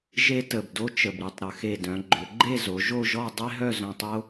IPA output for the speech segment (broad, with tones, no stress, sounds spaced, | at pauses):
ʒ e˥ t ə˧˩ b d o˥ t͡ʃ ə˧˩ b ɾ i˧ tˤ ɾ ə˩˧ x e˧˩ d œ̃˩˧ ɡ͡ǃ ʏ˩˧ ɡ͡ǃ e˥˧ z o˩˧ ʒ o˥˧ ʒ ɔ˥˧ dˤ e˥ ɦ œ˥˧ z œ̃˧ tˤ o˥